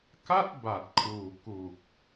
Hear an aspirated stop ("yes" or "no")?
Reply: yes